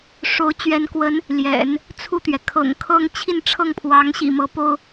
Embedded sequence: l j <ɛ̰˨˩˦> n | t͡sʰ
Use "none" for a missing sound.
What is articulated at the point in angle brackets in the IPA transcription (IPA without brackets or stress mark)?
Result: ɛ̰˨˩˦